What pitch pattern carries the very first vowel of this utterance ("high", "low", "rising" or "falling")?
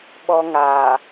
high